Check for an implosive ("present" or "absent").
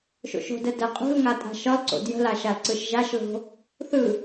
absent